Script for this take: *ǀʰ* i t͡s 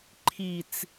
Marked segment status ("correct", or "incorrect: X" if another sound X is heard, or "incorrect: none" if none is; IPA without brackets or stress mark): incorrect: ǃʰ